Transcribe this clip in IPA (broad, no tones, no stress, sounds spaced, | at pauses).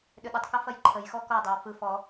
ɗ ʏ ɗ ʏ tˤ k ɐ f ɐ j ǃʰ ə j x ɔ k ɔ dˤ ɛ w f ɯ f ɔ